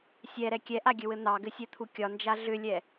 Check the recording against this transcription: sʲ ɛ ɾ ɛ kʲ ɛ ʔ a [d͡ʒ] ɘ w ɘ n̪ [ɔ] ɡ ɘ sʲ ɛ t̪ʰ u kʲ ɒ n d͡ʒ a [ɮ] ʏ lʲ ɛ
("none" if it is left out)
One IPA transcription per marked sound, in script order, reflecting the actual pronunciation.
ɡʲ, ɑ, ɮ

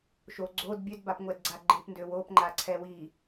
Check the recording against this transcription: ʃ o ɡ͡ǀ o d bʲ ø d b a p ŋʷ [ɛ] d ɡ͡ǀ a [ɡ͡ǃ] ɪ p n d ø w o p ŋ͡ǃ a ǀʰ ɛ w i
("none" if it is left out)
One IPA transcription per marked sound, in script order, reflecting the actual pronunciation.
ɛ, ɡ͡ǃ

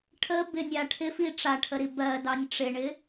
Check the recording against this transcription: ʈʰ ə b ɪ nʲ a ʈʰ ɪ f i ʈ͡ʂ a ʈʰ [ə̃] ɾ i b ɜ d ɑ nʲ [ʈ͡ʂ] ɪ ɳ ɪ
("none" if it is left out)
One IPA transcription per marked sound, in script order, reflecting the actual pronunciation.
ə, ʈ͡ʂ

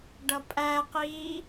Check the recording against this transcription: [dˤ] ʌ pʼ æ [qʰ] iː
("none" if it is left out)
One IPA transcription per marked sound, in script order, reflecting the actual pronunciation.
ɖ, q

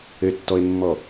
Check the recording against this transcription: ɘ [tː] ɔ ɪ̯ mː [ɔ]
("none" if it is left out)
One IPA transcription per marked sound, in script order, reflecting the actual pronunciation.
tː, ɔ

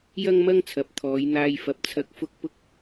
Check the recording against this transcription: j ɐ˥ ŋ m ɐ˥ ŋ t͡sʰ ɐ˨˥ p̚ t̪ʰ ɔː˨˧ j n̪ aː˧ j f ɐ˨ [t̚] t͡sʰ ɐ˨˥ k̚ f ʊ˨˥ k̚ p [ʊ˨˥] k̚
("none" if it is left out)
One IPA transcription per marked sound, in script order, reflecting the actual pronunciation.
p̚, ʊ˨

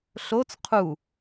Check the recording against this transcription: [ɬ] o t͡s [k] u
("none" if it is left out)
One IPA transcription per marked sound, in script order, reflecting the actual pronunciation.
ɬ, qʰ

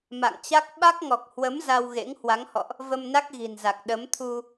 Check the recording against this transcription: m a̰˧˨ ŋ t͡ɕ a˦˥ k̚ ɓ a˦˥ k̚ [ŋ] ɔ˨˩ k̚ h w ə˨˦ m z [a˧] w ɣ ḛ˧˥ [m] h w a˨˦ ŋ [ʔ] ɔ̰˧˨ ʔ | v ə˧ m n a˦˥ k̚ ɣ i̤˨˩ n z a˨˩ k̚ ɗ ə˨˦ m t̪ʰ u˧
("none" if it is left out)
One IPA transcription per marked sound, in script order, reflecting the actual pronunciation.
ŋ, a˧, ŋ, h

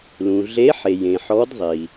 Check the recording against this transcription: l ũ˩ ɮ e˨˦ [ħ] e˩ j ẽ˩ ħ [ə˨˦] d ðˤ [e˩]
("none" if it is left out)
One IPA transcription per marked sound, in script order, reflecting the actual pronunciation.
ħ, ɔ˨˦, i˩

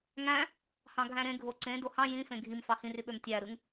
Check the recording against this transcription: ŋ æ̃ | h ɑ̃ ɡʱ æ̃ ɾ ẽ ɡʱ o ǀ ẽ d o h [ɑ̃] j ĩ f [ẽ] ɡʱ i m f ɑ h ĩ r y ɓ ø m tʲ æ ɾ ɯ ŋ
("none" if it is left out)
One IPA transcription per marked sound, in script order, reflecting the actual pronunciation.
ɑ̃, ẽ

